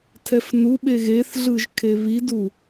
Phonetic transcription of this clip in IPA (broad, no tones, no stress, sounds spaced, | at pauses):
tʰ ɛ f n u ɓ e ɣ e θ ɮ ɯ ʒ kʰ e β i d u